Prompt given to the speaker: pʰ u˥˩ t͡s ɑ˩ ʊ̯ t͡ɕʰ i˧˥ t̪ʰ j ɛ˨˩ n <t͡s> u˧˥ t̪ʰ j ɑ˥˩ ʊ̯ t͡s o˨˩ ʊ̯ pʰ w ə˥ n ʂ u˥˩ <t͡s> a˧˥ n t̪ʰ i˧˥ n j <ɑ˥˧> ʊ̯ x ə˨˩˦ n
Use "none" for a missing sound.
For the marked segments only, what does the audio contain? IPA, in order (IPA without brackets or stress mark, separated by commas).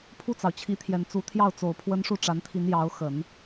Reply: t͡s, ʈ͡ʂ, ɑ˧˥